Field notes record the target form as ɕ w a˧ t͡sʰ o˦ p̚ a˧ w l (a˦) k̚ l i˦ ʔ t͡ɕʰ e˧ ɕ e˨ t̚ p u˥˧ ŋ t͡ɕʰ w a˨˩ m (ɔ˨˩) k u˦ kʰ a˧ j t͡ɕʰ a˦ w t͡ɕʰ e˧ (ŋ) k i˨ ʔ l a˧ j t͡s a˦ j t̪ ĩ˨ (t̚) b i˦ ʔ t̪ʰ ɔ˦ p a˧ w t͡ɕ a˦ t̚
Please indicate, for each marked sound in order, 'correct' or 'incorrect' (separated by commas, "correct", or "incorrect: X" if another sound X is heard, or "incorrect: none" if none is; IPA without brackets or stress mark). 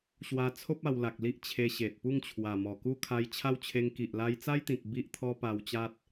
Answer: incorrect: a˨, correct, correct, incorrect: k̚